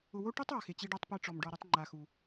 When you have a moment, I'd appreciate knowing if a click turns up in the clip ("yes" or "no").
yes